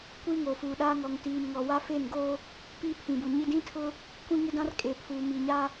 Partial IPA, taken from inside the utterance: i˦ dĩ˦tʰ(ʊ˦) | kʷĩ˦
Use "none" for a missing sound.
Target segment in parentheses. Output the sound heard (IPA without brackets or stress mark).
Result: ʊ˦